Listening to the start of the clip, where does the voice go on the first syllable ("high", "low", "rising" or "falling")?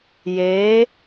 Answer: rising